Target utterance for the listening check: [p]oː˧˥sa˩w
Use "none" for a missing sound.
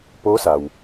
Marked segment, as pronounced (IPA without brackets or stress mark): p